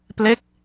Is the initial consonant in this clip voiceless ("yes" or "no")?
yes